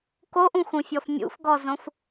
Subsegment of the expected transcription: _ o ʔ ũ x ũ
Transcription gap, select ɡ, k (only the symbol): k